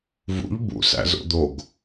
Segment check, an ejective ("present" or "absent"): absent